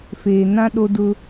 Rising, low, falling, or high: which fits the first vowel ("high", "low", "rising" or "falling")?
low